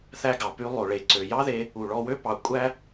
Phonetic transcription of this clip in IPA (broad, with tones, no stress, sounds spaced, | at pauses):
θ æ˧ ɡ ɑ˩ p y˧ lˠ o˩ ɭ e˩ ǀ ø˩ j ɑ˥ ð e˧ | u˩ ɭ ɔ˧ w ø˥ p ɑ˩ kʷʼ æ˥